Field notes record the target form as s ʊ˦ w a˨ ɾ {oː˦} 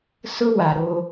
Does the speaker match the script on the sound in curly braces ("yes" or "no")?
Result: no